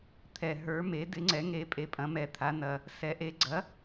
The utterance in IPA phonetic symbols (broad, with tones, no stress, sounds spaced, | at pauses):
t̪ʰ ɛ˨˩ ɦ ə˞˨˥ m e˨˥ d ɪ˨˥ ŋ͡ǀ ɛ˨˥ ŋ e˨˥ pʼ e˨˥ pʼ ɐ̃˨˥ m ɛ˨˥ t̪ʰ a˨˥ n ɐ˨˩ | s ɛ˨˥ ʔ e˨˥ ɡ͡ǀ ɐ˨˥